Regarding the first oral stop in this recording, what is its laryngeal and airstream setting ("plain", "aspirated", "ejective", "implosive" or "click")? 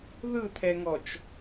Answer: aspirated